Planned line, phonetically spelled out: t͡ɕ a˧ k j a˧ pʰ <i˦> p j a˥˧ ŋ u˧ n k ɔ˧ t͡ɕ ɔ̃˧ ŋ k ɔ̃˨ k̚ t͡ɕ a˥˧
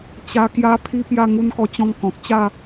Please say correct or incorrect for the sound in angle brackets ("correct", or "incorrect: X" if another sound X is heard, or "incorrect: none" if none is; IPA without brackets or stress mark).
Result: correct